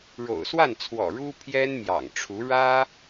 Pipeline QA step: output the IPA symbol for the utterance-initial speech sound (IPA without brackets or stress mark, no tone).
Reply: ɻ